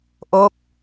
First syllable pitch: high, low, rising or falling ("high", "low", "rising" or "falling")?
falling